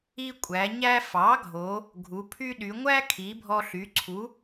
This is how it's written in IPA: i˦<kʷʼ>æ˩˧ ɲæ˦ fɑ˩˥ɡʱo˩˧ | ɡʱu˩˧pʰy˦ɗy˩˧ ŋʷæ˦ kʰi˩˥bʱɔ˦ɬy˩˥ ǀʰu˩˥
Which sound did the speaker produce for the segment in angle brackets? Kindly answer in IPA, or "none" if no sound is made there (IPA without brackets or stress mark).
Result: kʷʼ